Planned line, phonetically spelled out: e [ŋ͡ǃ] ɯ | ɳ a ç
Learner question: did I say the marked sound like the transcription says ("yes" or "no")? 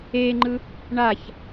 yes